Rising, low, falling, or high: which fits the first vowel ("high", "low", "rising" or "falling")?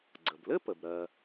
low